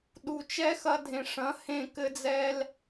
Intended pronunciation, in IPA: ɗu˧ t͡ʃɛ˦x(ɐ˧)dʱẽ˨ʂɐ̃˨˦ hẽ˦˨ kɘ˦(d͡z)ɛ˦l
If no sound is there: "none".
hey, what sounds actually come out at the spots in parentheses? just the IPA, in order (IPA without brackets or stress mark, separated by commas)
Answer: ɐ˧, d͡z